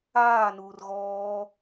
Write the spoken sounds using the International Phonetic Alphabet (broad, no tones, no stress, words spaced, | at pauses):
aː nuːrɣɔː